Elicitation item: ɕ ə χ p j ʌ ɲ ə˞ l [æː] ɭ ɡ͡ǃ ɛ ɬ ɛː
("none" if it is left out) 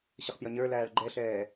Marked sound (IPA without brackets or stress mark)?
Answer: æː